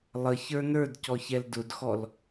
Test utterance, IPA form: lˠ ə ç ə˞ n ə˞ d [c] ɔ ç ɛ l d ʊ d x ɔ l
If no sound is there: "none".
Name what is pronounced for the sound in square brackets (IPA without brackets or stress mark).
c